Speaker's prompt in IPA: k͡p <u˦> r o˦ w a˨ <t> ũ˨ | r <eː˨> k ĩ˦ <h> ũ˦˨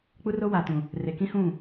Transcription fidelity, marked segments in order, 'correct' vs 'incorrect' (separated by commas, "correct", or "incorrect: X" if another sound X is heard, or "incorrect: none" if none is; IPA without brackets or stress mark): correct, correct, incorrect: e˨, correct